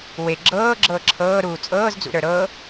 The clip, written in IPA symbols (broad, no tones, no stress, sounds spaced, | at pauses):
w e ɡ͡ǁ ɤː ɡ͡ǁ ɤː ǁʰ ɤː ɾ uː t͡sʼ ɤː z d͡z ṵ ɾ ə˞ ɾ ɤ